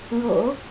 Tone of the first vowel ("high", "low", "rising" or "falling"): low